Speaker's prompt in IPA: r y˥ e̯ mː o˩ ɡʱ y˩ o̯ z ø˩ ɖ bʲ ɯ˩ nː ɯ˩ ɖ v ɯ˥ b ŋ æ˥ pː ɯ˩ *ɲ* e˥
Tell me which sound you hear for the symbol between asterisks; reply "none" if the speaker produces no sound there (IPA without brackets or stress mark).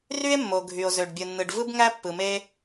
m